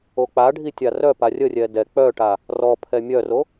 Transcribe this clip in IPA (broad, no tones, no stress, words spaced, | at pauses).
ok͡paɖʱi tʲarœpa rʲərʲɛ dɛ k͡pœʈa | rɔpʰɛ mʲœro